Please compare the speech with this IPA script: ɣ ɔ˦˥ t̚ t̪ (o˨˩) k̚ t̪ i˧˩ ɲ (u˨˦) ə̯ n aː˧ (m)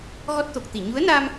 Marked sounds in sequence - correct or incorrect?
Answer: correct, correct, correct

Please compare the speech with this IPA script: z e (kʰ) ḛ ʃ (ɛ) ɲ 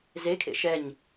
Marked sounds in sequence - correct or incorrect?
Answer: correct, correct

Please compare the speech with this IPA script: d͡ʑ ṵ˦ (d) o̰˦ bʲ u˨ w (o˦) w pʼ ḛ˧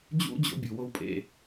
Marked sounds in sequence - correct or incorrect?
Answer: incorrect: d͡ʑ, correct

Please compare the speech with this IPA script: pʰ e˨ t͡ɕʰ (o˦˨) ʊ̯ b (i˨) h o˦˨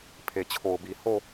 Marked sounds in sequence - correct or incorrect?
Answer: incorrect: o˨, correct

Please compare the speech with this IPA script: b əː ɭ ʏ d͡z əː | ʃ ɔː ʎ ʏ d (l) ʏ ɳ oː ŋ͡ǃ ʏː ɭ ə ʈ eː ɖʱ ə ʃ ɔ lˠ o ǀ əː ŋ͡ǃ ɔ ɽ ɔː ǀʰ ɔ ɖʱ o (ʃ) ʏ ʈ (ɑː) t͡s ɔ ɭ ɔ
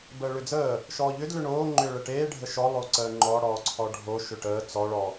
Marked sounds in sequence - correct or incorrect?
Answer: correct, correct, incorrect: əː

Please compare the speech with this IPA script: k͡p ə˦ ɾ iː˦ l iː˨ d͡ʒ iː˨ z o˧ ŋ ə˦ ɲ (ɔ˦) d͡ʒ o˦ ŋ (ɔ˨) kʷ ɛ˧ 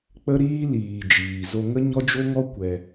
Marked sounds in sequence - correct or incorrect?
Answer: correct, incorrect: ɔ˦

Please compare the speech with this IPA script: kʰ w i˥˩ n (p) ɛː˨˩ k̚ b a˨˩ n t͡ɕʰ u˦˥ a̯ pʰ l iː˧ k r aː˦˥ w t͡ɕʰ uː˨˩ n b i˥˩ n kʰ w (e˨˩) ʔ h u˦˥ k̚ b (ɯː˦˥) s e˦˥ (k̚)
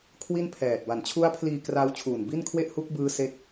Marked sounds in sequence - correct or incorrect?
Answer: incorrect: pʰ, incorrect: e˥˩, correct, correct

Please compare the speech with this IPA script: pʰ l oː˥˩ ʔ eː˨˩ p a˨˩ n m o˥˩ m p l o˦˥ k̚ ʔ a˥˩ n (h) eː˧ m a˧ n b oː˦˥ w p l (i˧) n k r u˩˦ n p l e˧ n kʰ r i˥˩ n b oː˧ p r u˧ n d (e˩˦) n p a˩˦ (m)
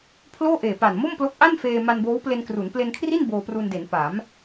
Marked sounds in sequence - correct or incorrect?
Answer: incorrect: f, incorrect: e˧, correct, correct

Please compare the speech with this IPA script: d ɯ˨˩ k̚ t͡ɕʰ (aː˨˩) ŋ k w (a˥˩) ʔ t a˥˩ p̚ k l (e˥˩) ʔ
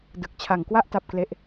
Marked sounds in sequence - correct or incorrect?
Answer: incorrect: a˨˩, correct, correct

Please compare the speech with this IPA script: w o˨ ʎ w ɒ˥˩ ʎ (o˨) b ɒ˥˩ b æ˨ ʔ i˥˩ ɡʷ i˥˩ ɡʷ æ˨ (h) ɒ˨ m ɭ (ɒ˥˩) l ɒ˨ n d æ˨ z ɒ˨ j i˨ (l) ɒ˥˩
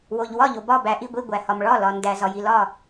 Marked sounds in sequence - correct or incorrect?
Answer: correct, correct, correct, correct

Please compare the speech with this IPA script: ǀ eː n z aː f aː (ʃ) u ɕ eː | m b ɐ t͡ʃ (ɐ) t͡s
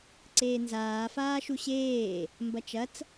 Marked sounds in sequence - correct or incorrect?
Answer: correct, correct

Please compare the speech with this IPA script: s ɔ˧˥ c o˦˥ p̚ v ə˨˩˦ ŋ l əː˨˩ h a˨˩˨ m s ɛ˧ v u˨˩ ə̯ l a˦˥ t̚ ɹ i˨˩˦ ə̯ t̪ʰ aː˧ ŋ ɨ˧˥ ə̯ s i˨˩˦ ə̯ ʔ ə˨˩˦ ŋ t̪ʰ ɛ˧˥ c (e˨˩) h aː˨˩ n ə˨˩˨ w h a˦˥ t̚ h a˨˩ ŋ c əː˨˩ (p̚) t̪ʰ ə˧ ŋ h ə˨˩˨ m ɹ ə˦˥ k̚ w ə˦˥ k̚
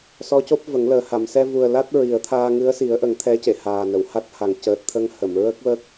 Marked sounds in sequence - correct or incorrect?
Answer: incorrect: e˨˩˨, incorrect: t̚

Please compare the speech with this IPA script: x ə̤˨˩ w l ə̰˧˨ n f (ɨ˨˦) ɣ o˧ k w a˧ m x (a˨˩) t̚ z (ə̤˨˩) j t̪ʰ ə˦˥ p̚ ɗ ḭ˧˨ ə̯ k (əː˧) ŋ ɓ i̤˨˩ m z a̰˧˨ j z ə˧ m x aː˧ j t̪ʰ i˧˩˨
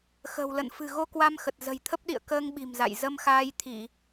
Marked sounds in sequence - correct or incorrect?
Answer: incorrect: ɨ̤˨˩, incorrect: ə˨˩, correct, correct

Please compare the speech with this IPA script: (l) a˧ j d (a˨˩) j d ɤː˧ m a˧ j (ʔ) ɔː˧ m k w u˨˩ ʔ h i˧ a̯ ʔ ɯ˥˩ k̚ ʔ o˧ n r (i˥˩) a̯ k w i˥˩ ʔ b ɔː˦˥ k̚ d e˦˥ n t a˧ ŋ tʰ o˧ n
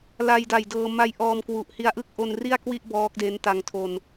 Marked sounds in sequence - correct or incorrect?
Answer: correct, correct, correct, correct

